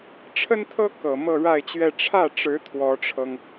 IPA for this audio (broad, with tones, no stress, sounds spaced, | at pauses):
ʈ͡ʂʰ ə˥ n t̪ʰ ɤ˥ k ɤ˨˩ m ɤ˥˧ ɻ a˥˧ ɪ̯ t͡ɕ ɥ ɛ˥˧ ʈ͡ʂʰ ä˥˩ ʈ͡ʂ ɻ̩˧˥ t̪ʰ w ɔ˧˥ ʈ͡ʂʰ ɤ˧ ŋ